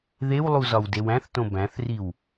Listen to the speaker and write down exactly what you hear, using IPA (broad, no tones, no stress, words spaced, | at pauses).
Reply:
ðewlˠuzɒwdew æ̃θtõ bæ̃θriw